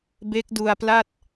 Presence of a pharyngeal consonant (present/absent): absent